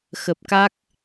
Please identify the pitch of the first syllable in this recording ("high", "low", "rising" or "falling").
low